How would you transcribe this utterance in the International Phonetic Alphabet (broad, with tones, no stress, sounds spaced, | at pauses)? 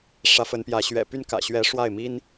ʂ ä˧˥ f ə˧˥ n p j ä˧˥ ɕ ɥ ɛ̰˨˩ p y˥˩ n k ä̰˨˩ ɕ ɥ ɛ˧˥ ʂ w a˥˩ ɪ̯ m i˥ n